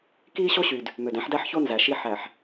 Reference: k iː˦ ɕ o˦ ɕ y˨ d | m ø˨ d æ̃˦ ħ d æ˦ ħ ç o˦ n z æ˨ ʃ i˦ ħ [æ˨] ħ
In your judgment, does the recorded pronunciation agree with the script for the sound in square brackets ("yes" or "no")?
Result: yes